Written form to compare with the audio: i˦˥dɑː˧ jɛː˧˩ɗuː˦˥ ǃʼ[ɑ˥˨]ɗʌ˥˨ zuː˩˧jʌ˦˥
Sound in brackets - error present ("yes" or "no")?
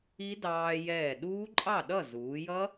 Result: no